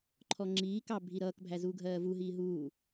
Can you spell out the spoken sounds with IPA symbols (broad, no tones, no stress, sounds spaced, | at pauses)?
ǃʰ ɔ ŋ͡ǁ iː k ɑ bʱ i ɾ ʌː k bʱ æ z uː ɡʱ ɜː v u ɦ iː ɦ uː